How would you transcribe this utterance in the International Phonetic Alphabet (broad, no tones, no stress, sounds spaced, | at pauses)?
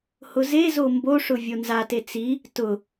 h ʊ z e z o m b o ʂ ʊ vʲ o n z a t e t͡s i | t ʊ